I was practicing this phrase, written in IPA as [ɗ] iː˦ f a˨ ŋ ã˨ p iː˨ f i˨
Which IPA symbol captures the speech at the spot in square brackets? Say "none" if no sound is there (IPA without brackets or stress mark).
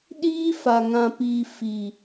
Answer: ɗ